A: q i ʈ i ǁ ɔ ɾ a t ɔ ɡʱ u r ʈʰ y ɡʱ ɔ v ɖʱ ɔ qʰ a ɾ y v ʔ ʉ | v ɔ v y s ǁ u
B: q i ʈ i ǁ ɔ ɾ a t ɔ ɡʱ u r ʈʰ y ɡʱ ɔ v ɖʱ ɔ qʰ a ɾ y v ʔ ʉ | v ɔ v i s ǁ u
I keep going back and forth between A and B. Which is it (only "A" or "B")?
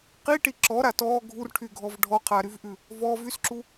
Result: A